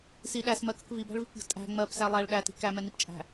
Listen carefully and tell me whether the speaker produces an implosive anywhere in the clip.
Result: yes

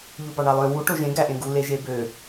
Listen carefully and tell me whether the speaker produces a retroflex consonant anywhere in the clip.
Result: yes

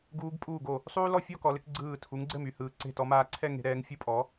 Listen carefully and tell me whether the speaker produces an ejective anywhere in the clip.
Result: yes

